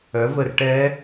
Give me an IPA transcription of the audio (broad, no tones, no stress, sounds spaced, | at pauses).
œ v ə r ʈ ɛ